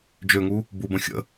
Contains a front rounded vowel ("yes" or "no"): yes